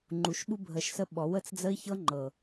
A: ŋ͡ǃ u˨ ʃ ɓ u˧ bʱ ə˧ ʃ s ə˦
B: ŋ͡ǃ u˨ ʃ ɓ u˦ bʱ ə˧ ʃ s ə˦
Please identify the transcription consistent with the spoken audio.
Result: A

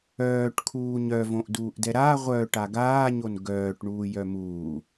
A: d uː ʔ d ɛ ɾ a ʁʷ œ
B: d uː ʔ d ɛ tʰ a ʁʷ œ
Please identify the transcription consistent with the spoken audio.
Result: A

